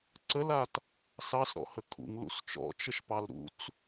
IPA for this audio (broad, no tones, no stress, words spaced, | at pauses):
ǀəlat | sɑsɾɔ̰hə kʰṵŋlṵs t͡ʃɔ̰t͡ʃəʃpɑl ɾṵt͡s